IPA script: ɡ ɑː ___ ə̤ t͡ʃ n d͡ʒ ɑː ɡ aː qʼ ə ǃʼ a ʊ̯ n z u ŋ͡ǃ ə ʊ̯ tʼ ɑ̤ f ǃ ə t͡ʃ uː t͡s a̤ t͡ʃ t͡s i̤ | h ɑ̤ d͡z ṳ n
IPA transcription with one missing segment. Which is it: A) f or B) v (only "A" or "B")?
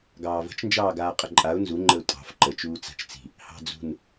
B